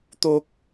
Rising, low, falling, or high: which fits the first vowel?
high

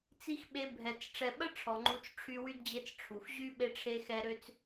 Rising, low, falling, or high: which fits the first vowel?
high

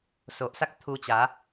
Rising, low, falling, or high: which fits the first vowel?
low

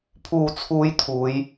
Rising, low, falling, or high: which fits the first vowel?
low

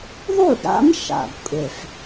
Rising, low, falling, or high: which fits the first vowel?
falling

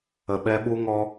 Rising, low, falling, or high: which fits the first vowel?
low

